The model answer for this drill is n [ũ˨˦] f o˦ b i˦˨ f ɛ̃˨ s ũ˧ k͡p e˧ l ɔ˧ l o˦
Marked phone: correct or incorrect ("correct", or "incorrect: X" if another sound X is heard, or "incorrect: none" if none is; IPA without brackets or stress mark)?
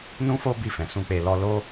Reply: incorrect: ũ˦